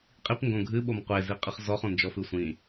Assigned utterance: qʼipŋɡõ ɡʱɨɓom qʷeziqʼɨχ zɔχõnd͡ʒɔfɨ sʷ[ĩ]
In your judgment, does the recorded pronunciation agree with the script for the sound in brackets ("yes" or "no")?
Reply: yes